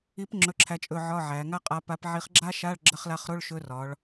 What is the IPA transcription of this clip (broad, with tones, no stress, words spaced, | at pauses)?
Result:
i˧˥p ŋ͡ǁɵ˧˥˧ǁʰæ˧˥t͡ʃʼɵ˦˨ ʕɒ˧˥˧ ʕæ˩˧ ŋa˥qʼa˧˥ pa˧˥pʕi˧˥χ ɡ͡ǁa˥ʃa˧˥˧ɭ ɡ͡ǁə˧˥˧χla˧˥χɾo˧˥˧ɭ ʃɵ˧˥ rɒ˩˧ɭ